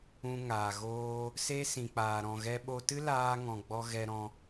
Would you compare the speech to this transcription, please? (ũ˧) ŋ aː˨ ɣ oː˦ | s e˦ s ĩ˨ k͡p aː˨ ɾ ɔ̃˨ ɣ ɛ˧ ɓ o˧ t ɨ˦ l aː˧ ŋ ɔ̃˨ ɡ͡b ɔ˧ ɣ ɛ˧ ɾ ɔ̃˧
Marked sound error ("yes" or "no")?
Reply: no